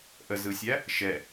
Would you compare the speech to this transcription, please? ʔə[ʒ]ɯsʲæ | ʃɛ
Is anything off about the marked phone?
yes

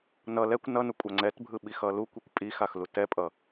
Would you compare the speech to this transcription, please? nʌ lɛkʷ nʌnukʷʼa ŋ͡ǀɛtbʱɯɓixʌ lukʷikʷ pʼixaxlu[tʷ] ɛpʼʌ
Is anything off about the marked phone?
yes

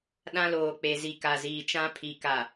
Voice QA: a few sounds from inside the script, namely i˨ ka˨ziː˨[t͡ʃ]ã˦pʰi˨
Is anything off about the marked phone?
no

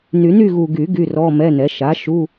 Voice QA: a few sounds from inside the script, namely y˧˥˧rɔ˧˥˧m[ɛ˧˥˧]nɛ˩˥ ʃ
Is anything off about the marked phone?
no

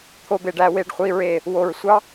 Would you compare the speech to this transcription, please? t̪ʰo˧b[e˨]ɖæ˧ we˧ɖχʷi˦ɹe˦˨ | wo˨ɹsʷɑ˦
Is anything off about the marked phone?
no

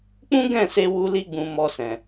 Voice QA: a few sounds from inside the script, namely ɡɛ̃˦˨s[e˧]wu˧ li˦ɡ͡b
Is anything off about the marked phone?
no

